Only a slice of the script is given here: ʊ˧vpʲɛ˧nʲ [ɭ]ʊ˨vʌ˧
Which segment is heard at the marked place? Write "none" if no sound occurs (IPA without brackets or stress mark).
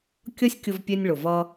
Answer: ɭ